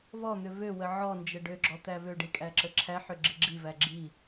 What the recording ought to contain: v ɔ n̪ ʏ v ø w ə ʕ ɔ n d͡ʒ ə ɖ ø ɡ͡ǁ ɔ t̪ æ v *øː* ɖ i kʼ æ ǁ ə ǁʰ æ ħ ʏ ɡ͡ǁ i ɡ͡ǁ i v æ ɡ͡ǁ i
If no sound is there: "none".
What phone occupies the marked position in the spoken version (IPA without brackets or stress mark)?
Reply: ø